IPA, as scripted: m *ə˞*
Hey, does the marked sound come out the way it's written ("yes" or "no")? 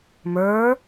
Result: yes